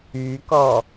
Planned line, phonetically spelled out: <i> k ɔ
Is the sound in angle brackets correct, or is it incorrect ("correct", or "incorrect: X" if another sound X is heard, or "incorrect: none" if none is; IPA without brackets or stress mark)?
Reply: incorrect: y